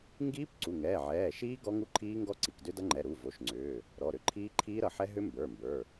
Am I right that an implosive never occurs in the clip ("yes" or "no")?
yes